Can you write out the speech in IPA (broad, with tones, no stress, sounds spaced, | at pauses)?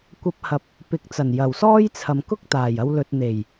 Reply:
kʷ ɐ˧ p̚ h ɐ˨ p̚ | p ɪ˨˥ k̚ t͡s ɐ˨˩ n j ɐ˨˩ w s ɔː˥ j t͡sʰ ɐ˨ m k ʊ˥ k̚ t̪ aː˨˩ j ɐ˧ w l ɵ˨ t̚ n̪ e˨˩ j